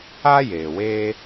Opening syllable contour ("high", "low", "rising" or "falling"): high